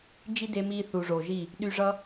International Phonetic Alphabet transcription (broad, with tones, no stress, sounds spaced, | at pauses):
d͡ʒ i˦ d e˧ m iː˧ θ u˨ ʐ o˨ ʒ i˦˨ | ɗ y˧ ʐ ʌ˦